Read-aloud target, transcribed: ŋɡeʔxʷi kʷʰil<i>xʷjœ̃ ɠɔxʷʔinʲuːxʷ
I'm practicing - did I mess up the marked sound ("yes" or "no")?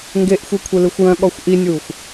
yes